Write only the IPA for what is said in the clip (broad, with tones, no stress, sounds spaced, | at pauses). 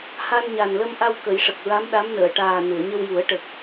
h a˧ n ɲ a˨˩ n l ə˧ m ʔ a˧ w k ə˨˩˦ j ʂ ə˨˩ k̚ ɹ a˧˥ m ɗ a˧˥ m n əː˨˩˨ ʈ aː˨˩ n ɨ˨˩˨ ə̯ ɲ ə˧ w j u˨˩˦ ə̯ ʈ ə˨˩ k̚